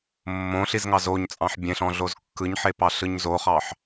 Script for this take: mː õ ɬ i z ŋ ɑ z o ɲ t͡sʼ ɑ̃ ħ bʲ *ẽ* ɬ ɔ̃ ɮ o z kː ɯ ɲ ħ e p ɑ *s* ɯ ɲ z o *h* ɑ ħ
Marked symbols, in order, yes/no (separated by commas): yes, no, no